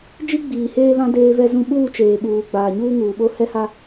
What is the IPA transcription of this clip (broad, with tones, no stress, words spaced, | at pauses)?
d͡ʒi˦ɡ͡biː˨heː˦βã˦ deː˦vɛ˦zũ˦ ɓuː˦˨t͡ʃeː˨ɓuː˨ ɡ͡baː˨ɲuː˦ŋuː˨ɓo˦ hɛ˦ha˦